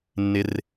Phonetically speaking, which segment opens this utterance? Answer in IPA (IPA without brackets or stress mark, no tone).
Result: nː